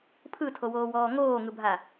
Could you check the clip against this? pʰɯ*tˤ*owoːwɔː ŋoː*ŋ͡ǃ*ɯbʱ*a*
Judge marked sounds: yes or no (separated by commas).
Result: no, no, yes